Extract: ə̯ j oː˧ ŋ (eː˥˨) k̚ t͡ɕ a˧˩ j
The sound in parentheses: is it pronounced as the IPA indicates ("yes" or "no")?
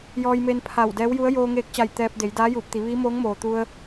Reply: no